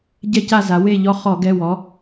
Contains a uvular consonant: yes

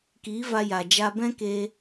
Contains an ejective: no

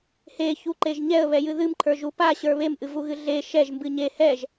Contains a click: yes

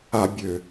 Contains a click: no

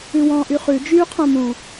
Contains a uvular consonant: yes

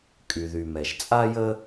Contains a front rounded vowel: yes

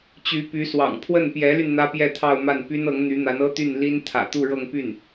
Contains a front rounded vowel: yes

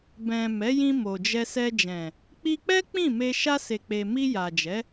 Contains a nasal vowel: yes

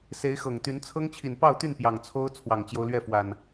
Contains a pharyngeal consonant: no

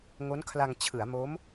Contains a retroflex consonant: no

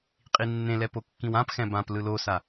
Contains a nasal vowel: yes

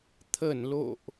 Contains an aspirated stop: yes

